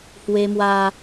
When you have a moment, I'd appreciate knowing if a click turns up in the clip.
no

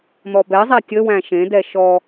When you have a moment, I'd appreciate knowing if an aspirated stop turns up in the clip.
no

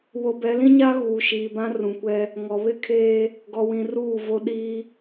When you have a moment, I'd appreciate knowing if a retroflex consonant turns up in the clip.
no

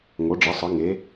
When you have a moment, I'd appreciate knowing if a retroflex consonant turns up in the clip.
yes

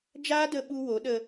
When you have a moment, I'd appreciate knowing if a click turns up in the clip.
no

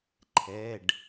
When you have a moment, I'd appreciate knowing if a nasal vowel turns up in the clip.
no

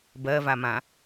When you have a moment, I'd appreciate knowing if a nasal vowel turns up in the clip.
yes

